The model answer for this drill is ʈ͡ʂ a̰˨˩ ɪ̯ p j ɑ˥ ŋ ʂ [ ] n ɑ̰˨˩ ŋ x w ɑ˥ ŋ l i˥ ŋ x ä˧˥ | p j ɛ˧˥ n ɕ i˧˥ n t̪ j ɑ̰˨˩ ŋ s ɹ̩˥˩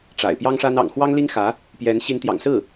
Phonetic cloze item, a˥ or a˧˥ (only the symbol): a˥